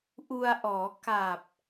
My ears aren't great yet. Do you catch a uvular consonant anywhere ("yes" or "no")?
no